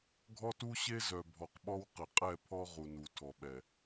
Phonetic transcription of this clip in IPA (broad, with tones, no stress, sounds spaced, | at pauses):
ɡʱ ɔ˦ t u˦ ɕ e˦ z œ˨ bʱ ɔ˨ q ɓ ɔ˦ w q ɪ˨ qʼ ɛ˦˨ pʰ ɔ˦ ʁ u˨ n u˨ tʰ ɔ˨ ɓ ɛ˨